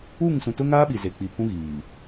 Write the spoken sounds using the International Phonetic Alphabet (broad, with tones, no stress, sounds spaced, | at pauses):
uː˦˨ ŋ s ũ˨ t ʊ˦ ŋ aː˦ ɓ i˨ z e˨ k͡p i˨ pʰ ũ˦ ɣ iː˨